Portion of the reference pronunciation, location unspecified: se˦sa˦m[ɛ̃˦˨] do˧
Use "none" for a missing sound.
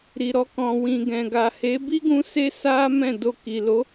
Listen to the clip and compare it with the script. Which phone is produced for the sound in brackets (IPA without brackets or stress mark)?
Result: ɛ̃˦˨